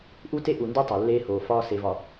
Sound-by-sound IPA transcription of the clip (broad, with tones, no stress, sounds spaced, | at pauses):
ʔ u˦ t e˦ ʔ u˨ n d u˦ tˤ o˨ lː eː˦ h oː˨ f ɒː˦ s e˨ v ɒ˨